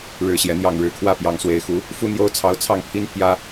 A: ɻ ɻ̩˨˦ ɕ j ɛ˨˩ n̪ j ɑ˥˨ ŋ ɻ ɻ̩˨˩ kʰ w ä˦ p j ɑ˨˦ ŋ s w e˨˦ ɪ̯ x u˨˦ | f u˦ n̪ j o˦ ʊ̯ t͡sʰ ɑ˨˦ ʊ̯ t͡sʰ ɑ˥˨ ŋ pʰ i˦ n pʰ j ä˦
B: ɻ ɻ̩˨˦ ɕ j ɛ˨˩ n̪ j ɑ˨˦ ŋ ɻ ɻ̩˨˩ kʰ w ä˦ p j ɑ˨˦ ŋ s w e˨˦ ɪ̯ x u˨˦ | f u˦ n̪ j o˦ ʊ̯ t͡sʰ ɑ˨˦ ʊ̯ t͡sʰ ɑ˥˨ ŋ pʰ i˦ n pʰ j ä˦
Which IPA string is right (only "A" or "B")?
A